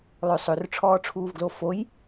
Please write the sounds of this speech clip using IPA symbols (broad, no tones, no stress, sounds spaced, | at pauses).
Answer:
lˠ ø sˤ ø r ʈ͡ʂʰ ɔː ʈ͡ʂʰ uː v ɡ l o f o j